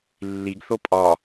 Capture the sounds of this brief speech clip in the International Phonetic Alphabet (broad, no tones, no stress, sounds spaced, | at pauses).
lː i ɡ θ o pʼ ɒ